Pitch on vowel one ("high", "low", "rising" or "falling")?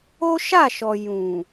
high